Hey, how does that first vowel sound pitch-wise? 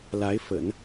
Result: rising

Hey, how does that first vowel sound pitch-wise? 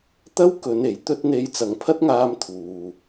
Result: high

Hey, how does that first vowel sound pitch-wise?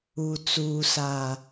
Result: low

